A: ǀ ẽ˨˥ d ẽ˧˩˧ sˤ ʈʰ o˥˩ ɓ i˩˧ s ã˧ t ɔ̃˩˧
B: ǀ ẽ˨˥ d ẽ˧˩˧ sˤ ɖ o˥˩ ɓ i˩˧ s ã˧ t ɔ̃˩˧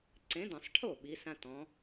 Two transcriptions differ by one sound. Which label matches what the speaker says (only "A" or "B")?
A